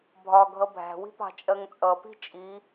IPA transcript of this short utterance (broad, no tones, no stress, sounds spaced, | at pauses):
bʱ ɒ ɡʱ ʌ bʱ æ̤ w i̤ p ɑ̤ t͡ʃʼ ɜ ŋ t͡sʼ ʌ p i̤ t͡ʃʼ i